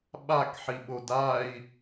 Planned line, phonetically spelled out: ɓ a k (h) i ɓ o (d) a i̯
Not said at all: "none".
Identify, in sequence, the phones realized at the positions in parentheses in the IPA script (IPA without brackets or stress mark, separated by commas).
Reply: ħ, d